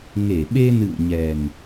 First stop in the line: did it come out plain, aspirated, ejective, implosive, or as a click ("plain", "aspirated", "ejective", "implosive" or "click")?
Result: implosive